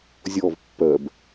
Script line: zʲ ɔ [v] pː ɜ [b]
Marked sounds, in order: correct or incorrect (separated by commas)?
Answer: correct, correct